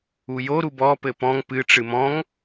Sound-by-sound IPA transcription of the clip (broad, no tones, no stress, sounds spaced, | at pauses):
u j o ɾ u b ɔ p ɘ p ɔ̃ ŋ p ɨ ʈ͡ʂ ɨ m ɔ̃ ŋ